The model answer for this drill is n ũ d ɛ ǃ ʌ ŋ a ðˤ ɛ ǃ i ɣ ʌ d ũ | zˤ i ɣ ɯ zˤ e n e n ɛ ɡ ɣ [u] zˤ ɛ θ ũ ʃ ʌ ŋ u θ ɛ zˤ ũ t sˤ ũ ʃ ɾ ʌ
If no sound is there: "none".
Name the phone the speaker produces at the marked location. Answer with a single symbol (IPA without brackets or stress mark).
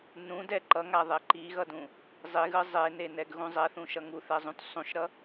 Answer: ũ